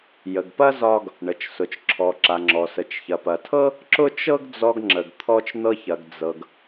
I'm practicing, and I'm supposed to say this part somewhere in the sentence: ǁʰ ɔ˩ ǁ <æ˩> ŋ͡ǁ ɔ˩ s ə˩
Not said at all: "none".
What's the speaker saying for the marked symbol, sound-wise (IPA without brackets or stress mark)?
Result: a˩